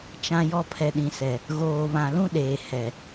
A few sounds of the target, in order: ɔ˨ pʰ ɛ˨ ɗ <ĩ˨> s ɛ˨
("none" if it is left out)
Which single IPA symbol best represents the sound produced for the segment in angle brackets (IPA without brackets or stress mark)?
ĩ˨